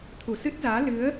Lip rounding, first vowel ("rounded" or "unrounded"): rounded